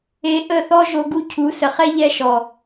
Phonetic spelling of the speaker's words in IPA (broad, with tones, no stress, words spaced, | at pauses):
e˧ʔə˦˨θɔ˦ ʒo˧ɡu˦ cʰu˨˦sə˨χɛ˦ ʎɛ˦ʃɔ˨